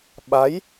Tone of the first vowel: rising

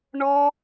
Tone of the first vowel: high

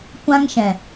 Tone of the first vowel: high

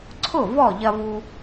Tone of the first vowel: falling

